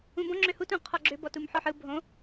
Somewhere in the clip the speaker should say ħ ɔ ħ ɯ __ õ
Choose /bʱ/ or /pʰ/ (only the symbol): bʱ